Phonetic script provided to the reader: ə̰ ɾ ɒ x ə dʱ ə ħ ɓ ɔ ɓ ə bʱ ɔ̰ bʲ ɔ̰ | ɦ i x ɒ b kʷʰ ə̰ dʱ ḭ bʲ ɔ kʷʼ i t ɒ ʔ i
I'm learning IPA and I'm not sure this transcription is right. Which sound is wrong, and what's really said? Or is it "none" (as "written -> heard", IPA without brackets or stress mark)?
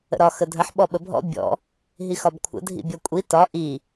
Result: none